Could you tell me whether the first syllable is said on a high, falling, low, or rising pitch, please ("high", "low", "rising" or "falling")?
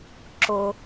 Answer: low